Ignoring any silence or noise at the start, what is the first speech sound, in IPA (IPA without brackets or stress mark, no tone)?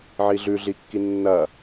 ʕ